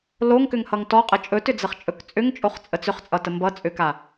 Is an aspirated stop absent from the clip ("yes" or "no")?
yes